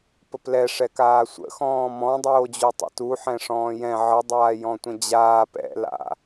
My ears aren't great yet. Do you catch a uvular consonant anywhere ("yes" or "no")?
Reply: no